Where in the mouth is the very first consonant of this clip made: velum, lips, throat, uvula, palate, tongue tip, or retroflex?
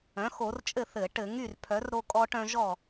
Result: velum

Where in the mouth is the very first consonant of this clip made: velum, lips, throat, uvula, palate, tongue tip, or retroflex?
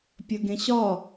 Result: lips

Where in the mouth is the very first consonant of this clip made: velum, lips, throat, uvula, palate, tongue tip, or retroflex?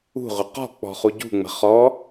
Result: uvula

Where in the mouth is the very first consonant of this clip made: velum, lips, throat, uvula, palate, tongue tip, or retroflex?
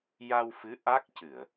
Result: palate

